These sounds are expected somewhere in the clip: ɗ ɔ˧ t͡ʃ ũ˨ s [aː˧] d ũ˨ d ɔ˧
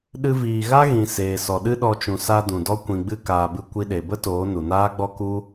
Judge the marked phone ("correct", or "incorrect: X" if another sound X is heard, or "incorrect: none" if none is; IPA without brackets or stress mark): incorrect: a˧